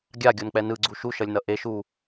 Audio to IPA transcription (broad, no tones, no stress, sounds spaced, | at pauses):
ɡʲ a ɡʲ o n k͡p ɛ n ɯ ɡ͡ǀ u ʃ u ʃ ʌ lʲ n ʌ ʔ e ʃ u